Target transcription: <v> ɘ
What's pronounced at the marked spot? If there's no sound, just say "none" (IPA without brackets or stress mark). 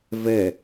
v